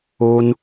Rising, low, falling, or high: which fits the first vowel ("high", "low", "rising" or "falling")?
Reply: high